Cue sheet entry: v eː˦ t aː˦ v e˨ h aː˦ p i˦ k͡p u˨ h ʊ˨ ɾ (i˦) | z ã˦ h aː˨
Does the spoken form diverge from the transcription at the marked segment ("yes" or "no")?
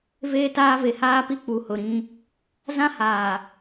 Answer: yes